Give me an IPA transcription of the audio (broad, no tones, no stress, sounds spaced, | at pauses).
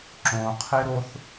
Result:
ǁ õ qʰ e ɾ o θ